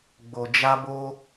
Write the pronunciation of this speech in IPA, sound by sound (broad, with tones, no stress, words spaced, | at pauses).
ɡ͡bo˨d͡ʒa˧bo˧